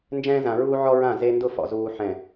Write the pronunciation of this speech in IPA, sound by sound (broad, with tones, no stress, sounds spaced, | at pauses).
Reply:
n d͡ʒ ɛ̃ː˦ z ã˨ ɹ uː˦ ʕ ɔ˦ ɹ ã˦˨ z e˦ n d ʊ˦˨ f ɔ̰˨ z uː˨ ħ ɛ̃˨